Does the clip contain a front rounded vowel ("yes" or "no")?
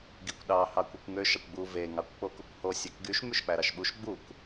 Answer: yes